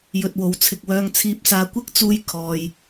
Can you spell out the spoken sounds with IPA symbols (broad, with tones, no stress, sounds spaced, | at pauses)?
j ɵ˨ t̚ w o˨˥ w t͡sʰ ɪ˨ k̚ w œː˧ ŋ t͡sʰ iː˧ p̚ s aː˧ kʷ ɪ˥ k̚ t͡s uː˧ j kʰ ɔː˨ j